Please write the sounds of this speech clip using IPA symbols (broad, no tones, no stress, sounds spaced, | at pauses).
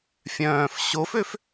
fʲ œ̃ː f ɕ o f ø f